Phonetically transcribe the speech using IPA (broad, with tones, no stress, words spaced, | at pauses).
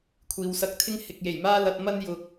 kʷʰiː˨wsɐ˧k̚t̪ʰɪ˥ŋ hɪ˨k̚je˨˩jmaː˥ lɐ˧t̚ mɐ˥njʊ˧k̚